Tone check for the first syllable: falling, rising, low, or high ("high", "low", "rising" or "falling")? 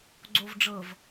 low